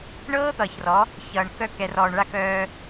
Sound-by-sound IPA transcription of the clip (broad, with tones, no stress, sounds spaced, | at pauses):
ɳ ɤː˦ t̪ ʌː˨ ç r ɔ˨˦ | ç ʌː˨ ɳ k œ˦ k ɛ˨ r ɔː˨ ɳ ɭ a˦ k œː˦